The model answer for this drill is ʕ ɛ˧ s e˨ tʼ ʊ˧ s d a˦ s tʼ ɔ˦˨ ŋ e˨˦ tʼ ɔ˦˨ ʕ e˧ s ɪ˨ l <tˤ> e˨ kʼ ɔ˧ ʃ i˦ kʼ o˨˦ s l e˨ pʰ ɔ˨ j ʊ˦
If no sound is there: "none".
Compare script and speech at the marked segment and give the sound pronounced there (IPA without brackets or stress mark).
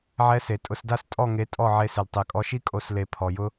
tˤ